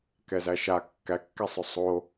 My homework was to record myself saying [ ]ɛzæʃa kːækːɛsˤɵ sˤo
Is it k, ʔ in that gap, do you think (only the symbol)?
k